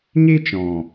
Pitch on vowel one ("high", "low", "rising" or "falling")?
high